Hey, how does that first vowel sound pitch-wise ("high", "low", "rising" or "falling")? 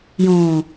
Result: low